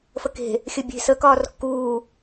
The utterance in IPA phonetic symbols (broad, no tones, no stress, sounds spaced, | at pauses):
f ə k e̤ | xʲ ə bʲ e̤ s ə k ɒː r kː uː